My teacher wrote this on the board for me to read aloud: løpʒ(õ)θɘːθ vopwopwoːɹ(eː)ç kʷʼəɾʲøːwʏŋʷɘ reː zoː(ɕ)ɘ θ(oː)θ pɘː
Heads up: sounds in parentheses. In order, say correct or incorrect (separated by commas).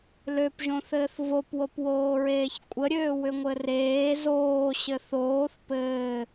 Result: correct, correct, correct, correct